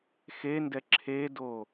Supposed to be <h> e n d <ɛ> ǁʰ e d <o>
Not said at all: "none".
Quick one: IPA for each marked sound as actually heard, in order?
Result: x, ɛ, o

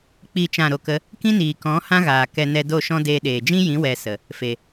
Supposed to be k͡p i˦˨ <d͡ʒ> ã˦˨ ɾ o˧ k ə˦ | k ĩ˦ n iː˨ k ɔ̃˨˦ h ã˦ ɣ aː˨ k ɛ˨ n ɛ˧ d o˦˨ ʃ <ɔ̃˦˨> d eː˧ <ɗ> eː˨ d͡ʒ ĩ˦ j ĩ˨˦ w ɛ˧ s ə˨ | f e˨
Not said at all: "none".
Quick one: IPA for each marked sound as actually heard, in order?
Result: t͡ʃ, ɔ̃˦, ɗ

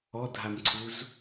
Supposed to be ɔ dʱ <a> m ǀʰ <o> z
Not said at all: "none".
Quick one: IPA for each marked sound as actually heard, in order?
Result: a, u

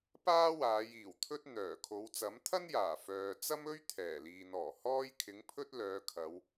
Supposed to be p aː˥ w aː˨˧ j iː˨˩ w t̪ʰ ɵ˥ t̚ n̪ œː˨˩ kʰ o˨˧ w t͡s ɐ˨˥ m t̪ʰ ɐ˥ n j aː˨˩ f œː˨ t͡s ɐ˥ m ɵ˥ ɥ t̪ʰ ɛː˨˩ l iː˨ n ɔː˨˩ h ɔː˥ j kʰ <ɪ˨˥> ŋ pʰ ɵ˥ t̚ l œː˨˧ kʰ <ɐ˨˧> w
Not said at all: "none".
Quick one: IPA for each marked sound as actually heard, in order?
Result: ɪ˨˥, ɐ˨˧

